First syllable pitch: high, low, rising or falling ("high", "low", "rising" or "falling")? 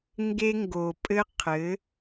high